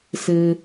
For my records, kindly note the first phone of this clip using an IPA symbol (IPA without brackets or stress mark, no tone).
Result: s